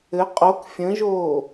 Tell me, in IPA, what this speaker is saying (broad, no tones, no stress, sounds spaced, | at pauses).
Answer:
ɘ qʼ o k fʲ ə̃ ʒ oː